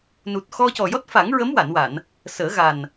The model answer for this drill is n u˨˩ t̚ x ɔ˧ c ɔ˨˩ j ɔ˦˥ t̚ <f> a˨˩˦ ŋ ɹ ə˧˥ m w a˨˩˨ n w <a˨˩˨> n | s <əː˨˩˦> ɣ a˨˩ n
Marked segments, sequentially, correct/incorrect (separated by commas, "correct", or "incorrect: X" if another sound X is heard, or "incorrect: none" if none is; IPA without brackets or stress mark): correct, correct, correct